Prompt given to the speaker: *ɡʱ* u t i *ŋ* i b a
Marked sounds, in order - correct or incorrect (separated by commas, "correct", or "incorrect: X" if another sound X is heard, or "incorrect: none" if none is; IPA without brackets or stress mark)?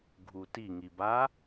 correct, correct